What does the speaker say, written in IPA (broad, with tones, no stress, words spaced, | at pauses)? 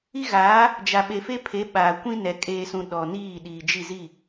i˦ɣaː˨˦ | d͡ʒa˨ɓe˨fe˦pʰe˨˦ ɓaː˨ kʷĩ˦nɛ˨ kʼeː˨sũ˨ ɗɔ˨niː˦˨ ɗiː˨d͡ʒi˦˨zi˦˨